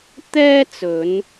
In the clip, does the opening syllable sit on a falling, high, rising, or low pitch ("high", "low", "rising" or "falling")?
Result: high